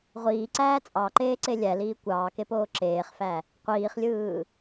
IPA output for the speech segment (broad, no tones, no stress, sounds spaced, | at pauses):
ʁʷ iː ǀ æː t͡sʼ ɑ ǃ eː ǀ e lʲ æ l iː kʷ ɑː k e p oː ǁ eː χ f æ | qʷ iː χ lʲ ɯː